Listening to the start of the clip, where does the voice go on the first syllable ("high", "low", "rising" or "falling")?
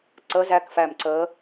rising